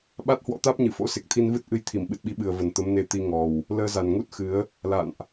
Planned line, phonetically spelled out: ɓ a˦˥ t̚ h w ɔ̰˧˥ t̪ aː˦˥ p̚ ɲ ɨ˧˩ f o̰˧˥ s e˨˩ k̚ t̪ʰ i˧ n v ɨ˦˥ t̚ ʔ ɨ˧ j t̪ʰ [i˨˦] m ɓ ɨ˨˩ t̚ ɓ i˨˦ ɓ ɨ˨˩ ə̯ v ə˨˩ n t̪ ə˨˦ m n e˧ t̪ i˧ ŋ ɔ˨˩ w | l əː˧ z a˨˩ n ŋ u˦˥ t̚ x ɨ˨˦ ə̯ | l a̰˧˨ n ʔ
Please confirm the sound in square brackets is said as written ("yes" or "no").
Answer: no